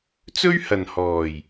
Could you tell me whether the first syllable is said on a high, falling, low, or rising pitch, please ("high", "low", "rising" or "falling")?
high